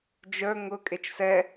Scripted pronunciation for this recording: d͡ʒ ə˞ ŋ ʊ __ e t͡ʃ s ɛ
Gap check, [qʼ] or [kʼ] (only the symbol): kʼ